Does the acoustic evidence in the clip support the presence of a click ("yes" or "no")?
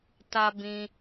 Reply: no